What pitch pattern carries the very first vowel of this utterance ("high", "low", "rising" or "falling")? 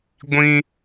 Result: high